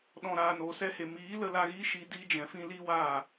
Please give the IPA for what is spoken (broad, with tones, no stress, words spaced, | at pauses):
ɗɔ̃˨ɾaː˨noː˨ sɛ˧he˨ miː˨˦lə˧la˧ɣiː˦ ʃi˧ diː˧d͡ʒɛ̃˨fĩ˧ li˦waː˦˨